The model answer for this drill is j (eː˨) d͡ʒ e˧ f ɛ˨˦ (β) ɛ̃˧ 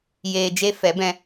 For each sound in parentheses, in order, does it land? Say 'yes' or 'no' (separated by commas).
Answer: yes, no